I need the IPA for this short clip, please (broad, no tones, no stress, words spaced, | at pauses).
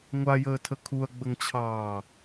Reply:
ŋʷajəːtʰə kʰuɐ̯ɡ͡bəŋt͡ɕʰɑː